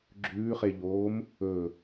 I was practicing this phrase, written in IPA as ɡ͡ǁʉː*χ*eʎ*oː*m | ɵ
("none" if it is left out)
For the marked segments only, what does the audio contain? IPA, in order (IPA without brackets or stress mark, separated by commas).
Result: χ, oː